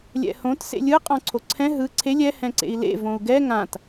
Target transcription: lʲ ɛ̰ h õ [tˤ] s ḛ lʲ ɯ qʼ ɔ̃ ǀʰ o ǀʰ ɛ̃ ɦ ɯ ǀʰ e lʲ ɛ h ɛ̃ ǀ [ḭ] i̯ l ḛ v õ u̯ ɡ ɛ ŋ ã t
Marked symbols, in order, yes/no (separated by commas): no, no